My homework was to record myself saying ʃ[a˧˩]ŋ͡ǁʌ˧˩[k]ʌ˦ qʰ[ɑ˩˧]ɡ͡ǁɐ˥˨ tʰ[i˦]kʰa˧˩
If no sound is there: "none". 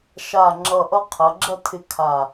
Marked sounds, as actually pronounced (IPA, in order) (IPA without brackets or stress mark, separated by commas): a˧˩, ʔ, ɐ˩˧, ɪ˦